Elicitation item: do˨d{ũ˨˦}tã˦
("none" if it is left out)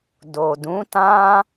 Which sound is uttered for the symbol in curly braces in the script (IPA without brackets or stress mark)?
ũ˨˦